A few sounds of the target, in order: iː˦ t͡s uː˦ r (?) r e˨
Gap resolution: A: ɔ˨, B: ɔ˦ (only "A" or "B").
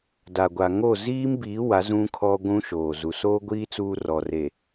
A